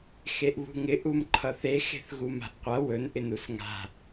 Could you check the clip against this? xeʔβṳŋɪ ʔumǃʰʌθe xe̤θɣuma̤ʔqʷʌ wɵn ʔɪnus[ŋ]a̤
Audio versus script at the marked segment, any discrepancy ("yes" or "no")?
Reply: no